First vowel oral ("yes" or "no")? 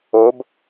yes